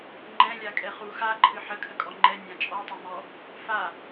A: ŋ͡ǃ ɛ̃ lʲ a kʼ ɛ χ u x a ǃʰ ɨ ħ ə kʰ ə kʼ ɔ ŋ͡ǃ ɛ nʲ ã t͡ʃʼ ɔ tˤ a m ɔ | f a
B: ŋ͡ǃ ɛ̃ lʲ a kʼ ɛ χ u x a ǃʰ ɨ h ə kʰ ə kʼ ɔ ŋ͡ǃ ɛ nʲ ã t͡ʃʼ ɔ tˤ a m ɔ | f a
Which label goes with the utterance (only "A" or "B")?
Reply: A